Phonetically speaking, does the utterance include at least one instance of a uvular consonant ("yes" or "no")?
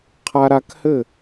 yes